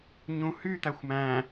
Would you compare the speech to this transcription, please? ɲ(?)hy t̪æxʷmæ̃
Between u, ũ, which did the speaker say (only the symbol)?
ũ